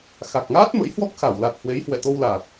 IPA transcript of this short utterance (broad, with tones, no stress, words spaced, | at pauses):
xa˨˩k̚ŋaː˦˥t̚mə̰˧˥j hwɔ˦˥k̚xa˧˩wla˨˩t̚ hwe˨˦jhwɛ̰˧˨t̪o˧wlaː˨˩t̚